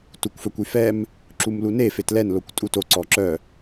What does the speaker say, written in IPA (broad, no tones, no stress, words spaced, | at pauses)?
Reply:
tukʷfœkʷyfɛm | ǁumlune fetlɛn lokʷtʼuto ǀɔǁœ